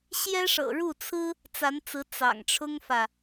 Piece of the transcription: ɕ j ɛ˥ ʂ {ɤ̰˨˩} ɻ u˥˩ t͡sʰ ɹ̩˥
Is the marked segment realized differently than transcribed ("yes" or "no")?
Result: no